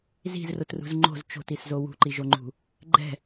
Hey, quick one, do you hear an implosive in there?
no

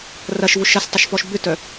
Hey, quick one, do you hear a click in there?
no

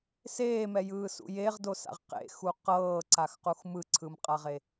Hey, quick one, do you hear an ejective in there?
yes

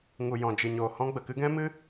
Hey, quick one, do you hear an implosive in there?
no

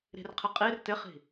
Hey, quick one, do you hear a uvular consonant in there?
yes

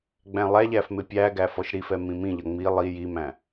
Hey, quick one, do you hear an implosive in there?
no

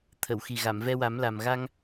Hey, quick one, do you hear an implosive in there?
no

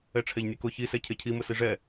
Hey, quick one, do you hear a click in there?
no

